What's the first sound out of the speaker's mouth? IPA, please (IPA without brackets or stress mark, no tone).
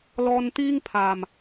l